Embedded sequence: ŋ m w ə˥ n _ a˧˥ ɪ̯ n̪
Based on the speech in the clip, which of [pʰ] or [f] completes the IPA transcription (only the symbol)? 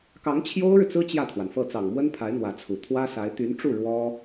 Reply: pʰ